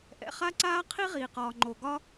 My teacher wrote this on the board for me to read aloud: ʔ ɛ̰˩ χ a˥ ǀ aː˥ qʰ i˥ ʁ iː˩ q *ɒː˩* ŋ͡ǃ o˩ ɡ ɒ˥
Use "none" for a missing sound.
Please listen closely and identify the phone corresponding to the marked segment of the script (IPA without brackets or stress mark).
ɒː˩